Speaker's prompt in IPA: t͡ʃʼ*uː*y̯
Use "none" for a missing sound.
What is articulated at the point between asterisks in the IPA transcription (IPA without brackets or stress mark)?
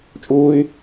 uː